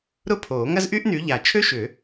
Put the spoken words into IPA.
ɾʊ˥pʰoː˨˩˦ ŋɐ˥zʔy˥ʔny˨˦ ʎa˨˩˦t͡ʃʰø˥ʃʏ˨˩˦

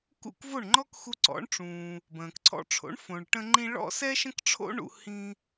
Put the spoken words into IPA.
kṵ˥˩kvo˥˩ɳ ŋ͡ǃɔ˥kxu˧ ǀɔ̰˩˥ɳʈ͡ʂũː˩ | bə̃ː˩kǀʰɔ̰˧ʈ͡ʂʰo̰˩˥ɳ fõ˩ɭʈə̃˧ŋ͡ǃĩ˧ ɭɔ̰˥sɛ˥ʃə̃˥kʈ͡ʂʰo̰˥ ɳṵ˧hĩ˧

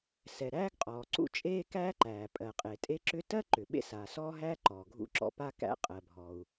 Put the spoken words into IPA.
sɛ˩ ɾæː˥ɡqʼɔː˩ǀṵ˥ t͡ʃʼeː˥kæː˥ǃæː˩ pʼɜ˩qʼe˩tʼe˥ǁʏ˥ tɜ˥ǃʏ˩ ɓḛ˥saː˩sɔː˥ɦæː˥ ǃɔː˩ɡʱṵ˥ǁɔ̰˥ pa˥ kæ̰˥qʼɜ˩bʱɔ˩u̯

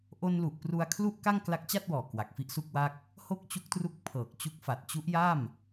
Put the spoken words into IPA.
ʔo˧n lu˨˩ʔpru˧a̯ kʰlu˥˩ʔka˥˩ŋ kla˦˥k̚t͡ɕa˥˩t̚wɔː˨˩ kwa˨˩k̚fi˥˩ʔsu˥˩k̚wa˥˩k̚ | ho˥˩k̚t͡ɕu˦˥k̚tru˦˥k̚ pʰɤː˨˩k̚t͡ɕu˦˥k̚fa˨˩t̚ t͡ɕu˦˥ʔ ja˥˩m

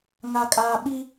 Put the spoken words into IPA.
ŋa˨kʼaː˨ɓi˦

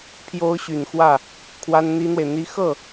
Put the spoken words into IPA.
pʰjo˧˥ʊ̯ ɕy˨˩nxwä˥˩ | kʰwa˥nn̪i˥n̪we˨ɪ̯n̪i˥ xɤ˥˩

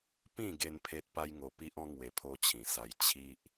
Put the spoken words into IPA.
pĩ˥˧ɡe˧n pʰe˦t̚ pa˦jŋo˧pi˦ʔɔ̃˦ ŋwe˧pʰo˦t͡ɕʰĩ˨˩sa˧j t͡ɕʰi˦ʔ

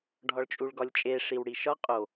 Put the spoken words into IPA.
ɖʱɒɭt͡ʃʼuɭɡɒlʲt͡ʃʼe ʂiwɽiʃɒ qʼo

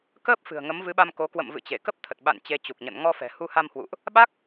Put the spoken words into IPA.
kəː˦˥p̚fɨ̤˨˩ə̯ ŋə˨˦mvɨ˨˦ɓa˧m ko˨˦ kwə̰˧˨mvɨ̰˧˨t͡ɕe˧˩ kə˦˥p̚t̪ʰə˨˩t̚ ɓa̰˧˨n t͡ɕe˧t͡ɕu˨˩k̚ɲə̰˧˨n ŋɔ˧fɛ̤˨˩ hu˧ha˧mhwṵ˧˨ʔ | ɓa˦˥k̚

